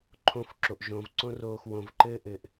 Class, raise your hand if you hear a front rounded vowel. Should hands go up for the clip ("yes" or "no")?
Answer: no